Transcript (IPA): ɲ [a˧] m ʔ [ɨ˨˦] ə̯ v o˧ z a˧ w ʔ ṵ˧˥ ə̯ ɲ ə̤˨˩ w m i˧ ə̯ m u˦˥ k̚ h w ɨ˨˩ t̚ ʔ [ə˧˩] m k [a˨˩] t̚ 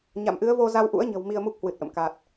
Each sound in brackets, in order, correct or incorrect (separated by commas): incorrect, correct, incorrect, correct